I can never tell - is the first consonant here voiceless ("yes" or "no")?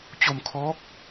yes